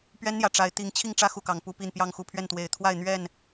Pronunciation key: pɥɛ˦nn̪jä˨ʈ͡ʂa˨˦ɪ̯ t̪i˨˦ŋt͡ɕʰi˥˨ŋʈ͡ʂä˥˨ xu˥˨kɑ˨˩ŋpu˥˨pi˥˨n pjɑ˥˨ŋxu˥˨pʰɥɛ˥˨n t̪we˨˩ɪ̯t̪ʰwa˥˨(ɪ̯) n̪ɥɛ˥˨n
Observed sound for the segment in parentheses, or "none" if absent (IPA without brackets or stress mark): ɪ̯